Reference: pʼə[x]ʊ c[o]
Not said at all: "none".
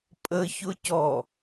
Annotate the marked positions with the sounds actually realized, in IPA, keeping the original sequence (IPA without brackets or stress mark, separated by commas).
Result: ç, ɔ